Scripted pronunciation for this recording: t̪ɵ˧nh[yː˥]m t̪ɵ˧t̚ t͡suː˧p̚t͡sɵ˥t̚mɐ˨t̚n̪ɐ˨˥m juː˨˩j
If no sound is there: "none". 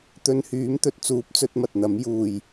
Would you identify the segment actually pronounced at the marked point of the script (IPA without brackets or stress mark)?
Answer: yː˨˥